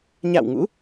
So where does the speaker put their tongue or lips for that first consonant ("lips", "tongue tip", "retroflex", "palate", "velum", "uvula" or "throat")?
palate